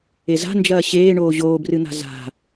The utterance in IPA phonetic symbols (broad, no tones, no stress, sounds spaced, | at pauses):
e z a̤ n d͡ʒ ɐː ɕ eː ɳ oː ʑ oː b r ɨ n̪ a̤ z a̤